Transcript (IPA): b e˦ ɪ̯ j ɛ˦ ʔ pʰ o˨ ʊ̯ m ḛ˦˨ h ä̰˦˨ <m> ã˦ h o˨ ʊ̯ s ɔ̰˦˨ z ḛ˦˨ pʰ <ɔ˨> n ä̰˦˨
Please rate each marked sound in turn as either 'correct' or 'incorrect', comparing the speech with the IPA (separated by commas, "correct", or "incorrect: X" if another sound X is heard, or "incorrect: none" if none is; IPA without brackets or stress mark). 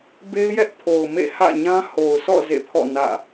incorrect: ɲ, incorrect: ɔ̰˦˨